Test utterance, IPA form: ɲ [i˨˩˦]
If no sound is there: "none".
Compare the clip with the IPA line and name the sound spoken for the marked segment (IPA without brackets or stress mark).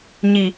i˨˩